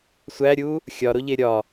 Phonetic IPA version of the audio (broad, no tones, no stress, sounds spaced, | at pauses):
sʷ æ ɾʲ u | xʲ ɒ ɾ o ʎ e ɾʲ ɒ